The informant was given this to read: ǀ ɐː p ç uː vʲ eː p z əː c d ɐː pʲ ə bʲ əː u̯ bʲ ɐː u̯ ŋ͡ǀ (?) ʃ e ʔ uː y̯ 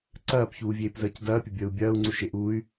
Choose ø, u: u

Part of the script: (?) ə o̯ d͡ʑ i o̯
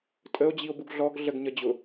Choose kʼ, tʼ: tʼ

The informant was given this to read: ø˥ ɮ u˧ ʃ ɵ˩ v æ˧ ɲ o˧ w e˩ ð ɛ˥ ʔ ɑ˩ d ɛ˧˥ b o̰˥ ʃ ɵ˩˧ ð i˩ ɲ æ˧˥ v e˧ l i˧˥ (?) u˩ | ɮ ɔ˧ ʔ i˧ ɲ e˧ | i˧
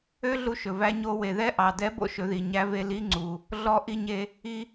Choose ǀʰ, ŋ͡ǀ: ŋ͡ǀ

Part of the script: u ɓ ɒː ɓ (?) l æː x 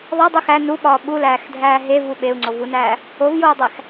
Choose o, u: u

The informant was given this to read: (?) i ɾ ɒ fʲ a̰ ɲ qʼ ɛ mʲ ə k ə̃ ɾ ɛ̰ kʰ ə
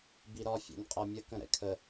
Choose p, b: b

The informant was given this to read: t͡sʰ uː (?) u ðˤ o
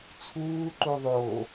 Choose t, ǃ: ǃ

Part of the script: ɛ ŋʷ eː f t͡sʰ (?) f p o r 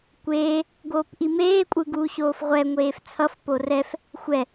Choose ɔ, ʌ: ʌ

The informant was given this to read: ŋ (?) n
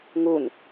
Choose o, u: u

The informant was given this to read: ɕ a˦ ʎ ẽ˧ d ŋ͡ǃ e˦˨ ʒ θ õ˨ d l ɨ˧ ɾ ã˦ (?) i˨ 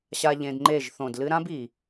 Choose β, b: b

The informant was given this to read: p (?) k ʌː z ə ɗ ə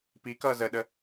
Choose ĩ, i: i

